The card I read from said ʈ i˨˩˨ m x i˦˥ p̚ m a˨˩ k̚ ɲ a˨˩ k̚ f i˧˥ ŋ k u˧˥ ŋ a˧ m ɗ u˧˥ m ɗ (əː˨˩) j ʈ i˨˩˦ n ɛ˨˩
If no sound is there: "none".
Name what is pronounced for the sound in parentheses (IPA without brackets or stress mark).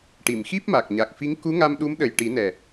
ə˨˩